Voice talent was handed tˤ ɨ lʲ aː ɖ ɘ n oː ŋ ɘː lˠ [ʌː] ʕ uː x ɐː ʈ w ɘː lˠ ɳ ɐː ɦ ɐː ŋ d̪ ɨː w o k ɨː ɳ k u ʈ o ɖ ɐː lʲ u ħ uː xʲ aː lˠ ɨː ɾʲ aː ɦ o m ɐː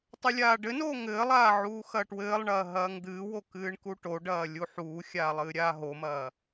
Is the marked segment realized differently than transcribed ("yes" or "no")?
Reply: yes